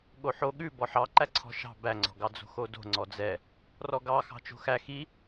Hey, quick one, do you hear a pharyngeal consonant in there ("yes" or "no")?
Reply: yes